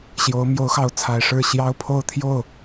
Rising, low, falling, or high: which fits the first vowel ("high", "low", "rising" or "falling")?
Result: rising